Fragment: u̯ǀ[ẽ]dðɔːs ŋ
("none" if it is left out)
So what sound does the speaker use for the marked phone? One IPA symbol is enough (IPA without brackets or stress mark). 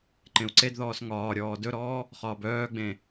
e